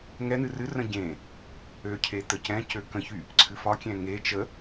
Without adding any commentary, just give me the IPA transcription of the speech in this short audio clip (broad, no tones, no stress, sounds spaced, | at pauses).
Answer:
ŋ ɛ n̪ ɨ r ɨ r ə̃ ɟ ẽ | ø cʰ e t̪ ə c ɛ̃ c ø k ə̃ ç y | ǀʰ ɨ f ɒ kʲ ɛ̃ ŋ e t͡ʃ ə